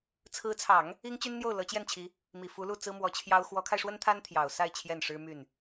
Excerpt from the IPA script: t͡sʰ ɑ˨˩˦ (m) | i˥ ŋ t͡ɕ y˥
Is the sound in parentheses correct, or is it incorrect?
incorrect